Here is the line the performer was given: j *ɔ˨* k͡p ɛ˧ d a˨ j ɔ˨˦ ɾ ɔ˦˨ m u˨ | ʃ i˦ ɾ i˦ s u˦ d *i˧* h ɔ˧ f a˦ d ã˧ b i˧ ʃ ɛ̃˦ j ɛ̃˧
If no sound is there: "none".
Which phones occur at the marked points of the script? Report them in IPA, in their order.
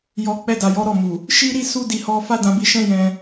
ɔ˨, i˧

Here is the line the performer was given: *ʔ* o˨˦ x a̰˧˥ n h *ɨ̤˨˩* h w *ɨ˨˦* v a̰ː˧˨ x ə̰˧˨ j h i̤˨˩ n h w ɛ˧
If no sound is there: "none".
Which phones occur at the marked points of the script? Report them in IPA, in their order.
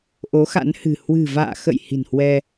ʔ, ɨ̤˨˩, ɨ̤˨˩

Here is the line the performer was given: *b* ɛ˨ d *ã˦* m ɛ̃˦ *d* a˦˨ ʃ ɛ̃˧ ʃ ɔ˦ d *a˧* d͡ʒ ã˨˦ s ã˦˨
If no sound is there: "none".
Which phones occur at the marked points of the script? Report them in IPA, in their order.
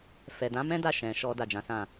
f, ã˨˦, d, a˦˨

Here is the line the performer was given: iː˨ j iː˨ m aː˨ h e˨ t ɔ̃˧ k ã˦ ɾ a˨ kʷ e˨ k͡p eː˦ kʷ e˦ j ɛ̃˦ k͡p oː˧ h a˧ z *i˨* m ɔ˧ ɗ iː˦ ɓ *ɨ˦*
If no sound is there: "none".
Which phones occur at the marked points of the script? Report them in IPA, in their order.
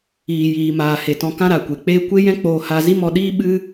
i˦, ɨ˦

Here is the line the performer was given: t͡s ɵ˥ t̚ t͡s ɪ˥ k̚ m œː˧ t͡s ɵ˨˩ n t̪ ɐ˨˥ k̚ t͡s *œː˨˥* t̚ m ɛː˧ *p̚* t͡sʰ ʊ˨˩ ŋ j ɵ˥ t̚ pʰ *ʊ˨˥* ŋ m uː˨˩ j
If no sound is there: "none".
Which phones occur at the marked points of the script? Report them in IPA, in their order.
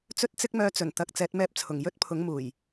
ɛː˨˥, p̚, ʊ˨˥

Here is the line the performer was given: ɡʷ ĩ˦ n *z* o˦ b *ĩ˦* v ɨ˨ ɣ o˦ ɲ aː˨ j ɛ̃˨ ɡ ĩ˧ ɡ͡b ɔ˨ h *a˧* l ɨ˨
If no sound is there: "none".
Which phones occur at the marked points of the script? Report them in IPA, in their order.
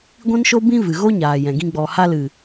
ʃ, ĩ˦, a˧

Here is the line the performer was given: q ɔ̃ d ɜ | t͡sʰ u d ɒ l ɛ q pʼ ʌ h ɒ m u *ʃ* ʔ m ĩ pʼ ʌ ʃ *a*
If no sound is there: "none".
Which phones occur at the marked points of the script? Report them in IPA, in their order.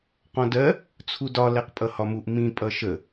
none, ə

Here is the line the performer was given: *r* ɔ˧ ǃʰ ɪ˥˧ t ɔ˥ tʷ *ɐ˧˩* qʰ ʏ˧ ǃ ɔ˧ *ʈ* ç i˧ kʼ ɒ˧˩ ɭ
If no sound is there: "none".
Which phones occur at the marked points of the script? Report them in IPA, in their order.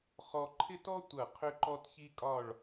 χ, ɐ˧˩, t

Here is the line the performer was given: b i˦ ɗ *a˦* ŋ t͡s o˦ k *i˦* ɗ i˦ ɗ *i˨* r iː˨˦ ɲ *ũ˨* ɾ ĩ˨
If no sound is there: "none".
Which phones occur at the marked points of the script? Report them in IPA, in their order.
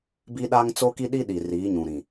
a˦, i˦, i˨, ũ˨

